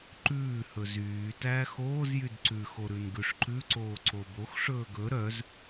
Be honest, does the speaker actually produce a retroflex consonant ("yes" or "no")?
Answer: yes